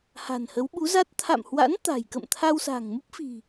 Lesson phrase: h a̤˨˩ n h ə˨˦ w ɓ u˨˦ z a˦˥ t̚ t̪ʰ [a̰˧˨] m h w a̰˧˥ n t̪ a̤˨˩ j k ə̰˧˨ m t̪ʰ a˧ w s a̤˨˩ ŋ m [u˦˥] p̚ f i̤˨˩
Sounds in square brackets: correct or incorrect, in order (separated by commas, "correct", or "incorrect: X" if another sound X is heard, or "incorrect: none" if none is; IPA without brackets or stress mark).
correct, correct